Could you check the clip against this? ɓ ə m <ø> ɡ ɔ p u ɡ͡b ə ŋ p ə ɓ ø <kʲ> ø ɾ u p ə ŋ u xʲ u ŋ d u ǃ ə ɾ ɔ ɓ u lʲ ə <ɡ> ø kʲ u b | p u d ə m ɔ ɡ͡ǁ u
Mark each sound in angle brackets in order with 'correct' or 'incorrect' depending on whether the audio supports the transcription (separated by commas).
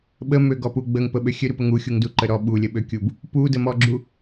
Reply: correct, incorrect, incorrect